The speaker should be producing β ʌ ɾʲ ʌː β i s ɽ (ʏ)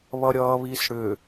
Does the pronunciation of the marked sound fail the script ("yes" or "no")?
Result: no